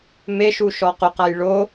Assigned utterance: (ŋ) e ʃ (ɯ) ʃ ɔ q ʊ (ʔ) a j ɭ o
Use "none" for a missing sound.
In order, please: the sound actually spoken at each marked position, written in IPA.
m, u, q

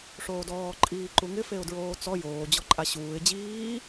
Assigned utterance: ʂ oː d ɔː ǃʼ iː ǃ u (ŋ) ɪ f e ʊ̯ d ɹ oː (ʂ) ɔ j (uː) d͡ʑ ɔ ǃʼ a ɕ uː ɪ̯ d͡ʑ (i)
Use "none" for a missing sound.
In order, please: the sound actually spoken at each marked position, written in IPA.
ŋ, t͡s, oː, iː

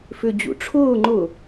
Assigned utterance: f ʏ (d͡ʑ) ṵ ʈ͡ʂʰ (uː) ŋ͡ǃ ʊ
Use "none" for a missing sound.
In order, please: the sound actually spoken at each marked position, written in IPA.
d͡ʑ, ʊː

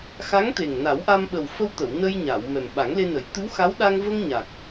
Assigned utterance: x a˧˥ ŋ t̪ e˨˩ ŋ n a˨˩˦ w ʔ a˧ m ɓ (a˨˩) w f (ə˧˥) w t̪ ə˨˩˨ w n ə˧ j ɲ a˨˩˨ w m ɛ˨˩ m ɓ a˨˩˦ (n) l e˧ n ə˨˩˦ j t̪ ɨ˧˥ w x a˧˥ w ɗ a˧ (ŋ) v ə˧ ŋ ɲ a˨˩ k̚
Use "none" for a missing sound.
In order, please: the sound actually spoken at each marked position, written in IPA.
ə˨˩, ə˧, ŋ, ŋ

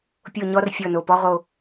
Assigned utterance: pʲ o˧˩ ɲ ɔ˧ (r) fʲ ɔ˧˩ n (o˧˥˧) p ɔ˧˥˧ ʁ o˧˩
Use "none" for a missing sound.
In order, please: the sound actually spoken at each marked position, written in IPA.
r, o˩˧˩

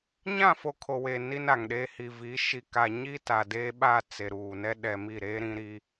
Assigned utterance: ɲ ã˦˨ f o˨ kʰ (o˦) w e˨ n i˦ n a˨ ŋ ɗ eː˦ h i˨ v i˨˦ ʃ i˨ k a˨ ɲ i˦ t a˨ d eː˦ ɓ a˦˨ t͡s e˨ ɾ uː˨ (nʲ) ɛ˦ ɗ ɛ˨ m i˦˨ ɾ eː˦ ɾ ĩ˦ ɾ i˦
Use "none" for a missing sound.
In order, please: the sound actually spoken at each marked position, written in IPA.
o˨, n

